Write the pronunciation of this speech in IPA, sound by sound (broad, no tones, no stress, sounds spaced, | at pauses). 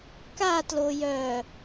k a t l o j œ